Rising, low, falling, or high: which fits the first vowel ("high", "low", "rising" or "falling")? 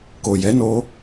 low